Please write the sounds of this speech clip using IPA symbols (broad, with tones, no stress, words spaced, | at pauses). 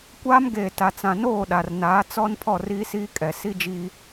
kʷaː˦mɡeː˨ ta˨t͡sã˨ noː˦˨ɗa˨rnaː˨˦t͡sɔ˦n pʰɔ˦˨riː˦siː˦ kʼɛ˨ si˦d͡ʒi˦